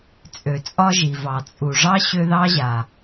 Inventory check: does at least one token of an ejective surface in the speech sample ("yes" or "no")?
yes